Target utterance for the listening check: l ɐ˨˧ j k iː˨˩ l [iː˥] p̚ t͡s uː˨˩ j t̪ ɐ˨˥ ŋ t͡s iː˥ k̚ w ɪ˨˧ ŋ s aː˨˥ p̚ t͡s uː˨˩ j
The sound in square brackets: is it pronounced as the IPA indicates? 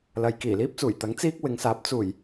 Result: yes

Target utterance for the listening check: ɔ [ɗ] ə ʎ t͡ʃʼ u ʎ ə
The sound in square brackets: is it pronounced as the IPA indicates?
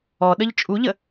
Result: yes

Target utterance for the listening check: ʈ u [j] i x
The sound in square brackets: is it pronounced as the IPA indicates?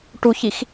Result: no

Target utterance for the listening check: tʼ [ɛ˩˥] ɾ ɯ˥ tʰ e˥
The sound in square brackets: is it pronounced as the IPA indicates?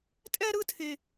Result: no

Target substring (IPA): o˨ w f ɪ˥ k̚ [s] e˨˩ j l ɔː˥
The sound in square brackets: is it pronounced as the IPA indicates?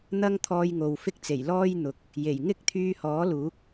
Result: no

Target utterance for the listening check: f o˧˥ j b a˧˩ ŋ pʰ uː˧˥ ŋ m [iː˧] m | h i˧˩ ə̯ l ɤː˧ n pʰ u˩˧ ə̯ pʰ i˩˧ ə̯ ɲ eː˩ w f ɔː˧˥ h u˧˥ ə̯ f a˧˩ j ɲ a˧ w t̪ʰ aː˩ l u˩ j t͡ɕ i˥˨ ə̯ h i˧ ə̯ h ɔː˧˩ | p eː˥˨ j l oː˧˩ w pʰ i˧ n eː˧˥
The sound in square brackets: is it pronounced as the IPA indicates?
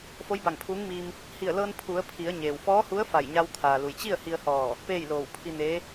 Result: yes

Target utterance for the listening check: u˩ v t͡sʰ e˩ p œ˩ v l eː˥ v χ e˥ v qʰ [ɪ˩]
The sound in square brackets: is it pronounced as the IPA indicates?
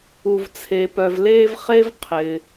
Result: yes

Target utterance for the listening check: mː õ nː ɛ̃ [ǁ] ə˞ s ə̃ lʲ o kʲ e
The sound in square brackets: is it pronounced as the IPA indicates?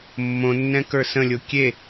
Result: no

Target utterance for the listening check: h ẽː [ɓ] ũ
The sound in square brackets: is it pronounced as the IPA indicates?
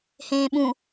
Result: yes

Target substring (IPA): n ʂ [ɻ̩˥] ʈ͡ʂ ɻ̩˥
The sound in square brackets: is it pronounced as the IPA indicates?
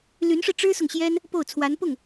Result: no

